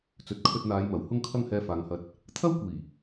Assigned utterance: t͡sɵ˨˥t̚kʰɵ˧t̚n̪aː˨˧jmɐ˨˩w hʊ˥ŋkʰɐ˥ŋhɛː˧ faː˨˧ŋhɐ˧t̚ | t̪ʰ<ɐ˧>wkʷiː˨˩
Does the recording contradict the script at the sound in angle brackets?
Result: yes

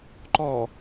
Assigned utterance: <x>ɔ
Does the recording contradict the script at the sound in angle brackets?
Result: yes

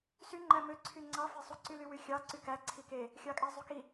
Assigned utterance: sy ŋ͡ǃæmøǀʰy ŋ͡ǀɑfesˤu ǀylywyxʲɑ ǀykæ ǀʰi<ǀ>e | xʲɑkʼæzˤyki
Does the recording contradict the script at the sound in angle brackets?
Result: yes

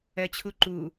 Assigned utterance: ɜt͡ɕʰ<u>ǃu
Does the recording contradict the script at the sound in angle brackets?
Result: no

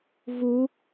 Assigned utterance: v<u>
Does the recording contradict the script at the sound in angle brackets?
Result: no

